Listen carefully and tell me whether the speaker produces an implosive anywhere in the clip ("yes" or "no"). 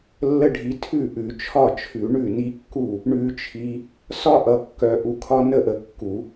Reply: no